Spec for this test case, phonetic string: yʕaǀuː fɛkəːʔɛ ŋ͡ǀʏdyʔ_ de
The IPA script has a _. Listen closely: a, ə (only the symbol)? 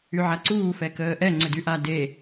a